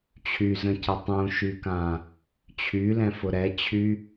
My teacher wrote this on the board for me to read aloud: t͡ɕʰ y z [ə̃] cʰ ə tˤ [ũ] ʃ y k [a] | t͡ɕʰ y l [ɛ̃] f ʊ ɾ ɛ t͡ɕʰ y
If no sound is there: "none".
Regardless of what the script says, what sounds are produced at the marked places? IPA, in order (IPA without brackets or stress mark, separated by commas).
ə̃, ũ, ã, ɛ̃